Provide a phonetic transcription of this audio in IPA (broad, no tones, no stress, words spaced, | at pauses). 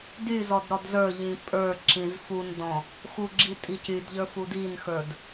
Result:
dyzɔd ɾɔdzə˞ʎĩ pʼə˞ǁĩz fundɔ̃ | xuɡ͡ǁi tʼicydʎə˞f udinxə˞d